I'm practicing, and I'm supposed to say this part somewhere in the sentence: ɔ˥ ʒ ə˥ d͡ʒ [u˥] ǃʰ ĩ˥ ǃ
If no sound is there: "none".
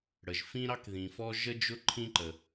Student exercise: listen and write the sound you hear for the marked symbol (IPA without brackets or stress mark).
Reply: ʊ˥